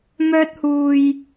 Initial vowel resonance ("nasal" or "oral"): oral